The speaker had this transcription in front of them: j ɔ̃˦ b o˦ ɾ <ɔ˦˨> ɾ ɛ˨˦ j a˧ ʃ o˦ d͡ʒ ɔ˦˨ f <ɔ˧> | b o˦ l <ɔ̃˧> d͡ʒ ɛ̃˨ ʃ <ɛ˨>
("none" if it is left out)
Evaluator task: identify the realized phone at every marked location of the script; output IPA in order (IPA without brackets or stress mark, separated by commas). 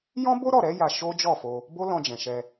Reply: ɔ˦˨, o˧, ɔ̃˧, ɛ˧